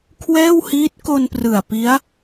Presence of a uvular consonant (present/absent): absent